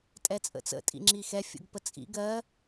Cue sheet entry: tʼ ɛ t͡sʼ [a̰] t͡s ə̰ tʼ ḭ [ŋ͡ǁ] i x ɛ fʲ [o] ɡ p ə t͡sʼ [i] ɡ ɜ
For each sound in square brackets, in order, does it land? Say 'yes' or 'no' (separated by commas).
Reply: no, yes, no, no